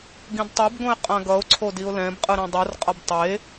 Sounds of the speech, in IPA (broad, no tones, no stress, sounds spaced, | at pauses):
ɡ ĩ d tˤ o b ɡ õ ɪ̯ qʼ ã ɡ ʌ ʊ̯ ǀʰ o d i ʊ̯ l ɛ̃ b qʼ ɯ ɾ ɛ̃ dˤ ɯ r qʼ ʌ b tˤ e